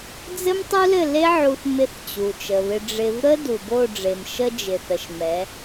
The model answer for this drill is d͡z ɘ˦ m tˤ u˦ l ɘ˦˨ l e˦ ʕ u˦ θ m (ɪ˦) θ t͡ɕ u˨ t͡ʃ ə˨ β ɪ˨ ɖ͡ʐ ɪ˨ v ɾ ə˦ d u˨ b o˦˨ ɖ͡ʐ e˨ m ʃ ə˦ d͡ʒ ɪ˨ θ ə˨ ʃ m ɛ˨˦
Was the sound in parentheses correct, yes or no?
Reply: yes